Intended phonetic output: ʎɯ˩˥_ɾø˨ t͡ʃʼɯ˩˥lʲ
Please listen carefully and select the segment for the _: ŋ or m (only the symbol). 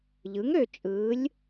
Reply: ŋ